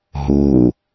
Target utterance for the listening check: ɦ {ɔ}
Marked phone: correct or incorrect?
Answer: incorrect